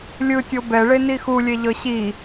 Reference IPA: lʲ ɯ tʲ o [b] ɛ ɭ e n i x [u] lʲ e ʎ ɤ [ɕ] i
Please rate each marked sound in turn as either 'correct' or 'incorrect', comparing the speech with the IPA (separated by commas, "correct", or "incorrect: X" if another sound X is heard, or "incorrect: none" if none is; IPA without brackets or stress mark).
correct, correct, correct